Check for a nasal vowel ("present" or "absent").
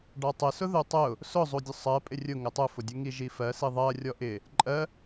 absent